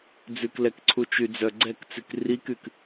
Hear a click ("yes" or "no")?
yes